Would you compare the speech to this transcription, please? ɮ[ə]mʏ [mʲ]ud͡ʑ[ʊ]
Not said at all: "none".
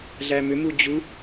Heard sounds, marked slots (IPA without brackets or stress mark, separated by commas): æ, m, u